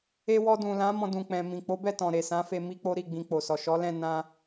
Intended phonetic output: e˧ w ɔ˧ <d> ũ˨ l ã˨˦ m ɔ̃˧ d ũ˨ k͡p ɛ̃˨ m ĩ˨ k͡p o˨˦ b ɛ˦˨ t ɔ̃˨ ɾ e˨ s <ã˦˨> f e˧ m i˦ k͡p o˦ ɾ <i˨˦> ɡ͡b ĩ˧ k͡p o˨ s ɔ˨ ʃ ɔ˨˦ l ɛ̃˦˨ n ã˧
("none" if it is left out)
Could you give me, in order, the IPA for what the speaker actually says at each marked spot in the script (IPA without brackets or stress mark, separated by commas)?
d, ã˨˦, i˦˨